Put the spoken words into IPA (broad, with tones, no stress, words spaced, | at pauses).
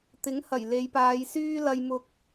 t̪ɪ˨˥ŋhɐ˨˩j le˨˧jpaː˨˧jsyː˥ lɐ˥jmʊ˥k̚